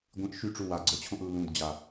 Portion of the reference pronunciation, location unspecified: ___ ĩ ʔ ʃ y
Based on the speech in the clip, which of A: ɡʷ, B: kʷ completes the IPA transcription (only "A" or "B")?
A